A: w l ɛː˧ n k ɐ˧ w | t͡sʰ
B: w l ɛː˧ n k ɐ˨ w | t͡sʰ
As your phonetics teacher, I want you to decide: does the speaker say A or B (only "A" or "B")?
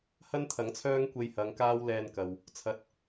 B